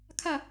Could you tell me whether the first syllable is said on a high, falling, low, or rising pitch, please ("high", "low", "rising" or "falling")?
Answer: falling